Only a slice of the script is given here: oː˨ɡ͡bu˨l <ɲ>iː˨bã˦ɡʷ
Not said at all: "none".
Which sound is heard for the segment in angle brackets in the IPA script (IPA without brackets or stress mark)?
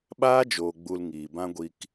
ŋ